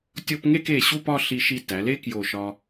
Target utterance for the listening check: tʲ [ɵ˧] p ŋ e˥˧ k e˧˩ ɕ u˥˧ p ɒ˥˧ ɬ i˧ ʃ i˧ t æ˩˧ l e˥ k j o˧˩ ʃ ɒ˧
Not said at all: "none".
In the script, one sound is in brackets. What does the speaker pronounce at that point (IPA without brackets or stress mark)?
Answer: o˧